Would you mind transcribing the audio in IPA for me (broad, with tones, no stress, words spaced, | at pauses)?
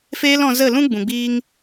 feː˦lɔ̃˧ zə˦˨lũ˦ ɡ͡bũ˨ɡ͡biː˦ŋ